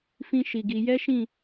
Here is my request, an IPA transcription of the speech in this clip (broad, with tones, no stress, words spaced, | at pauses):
fĩ˦ʃi˧ɡi˧ jɛ˦ʃĩ˦˨